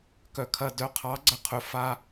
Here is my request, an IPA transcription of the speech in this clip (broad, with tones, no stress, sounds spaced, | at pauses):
k œ˨ kʰ ɐ˨ d œ˨˦ qʰ ɑ˨˦ ɡ͡ǀ ɐ˧ qʰ ɵ˨ f a˧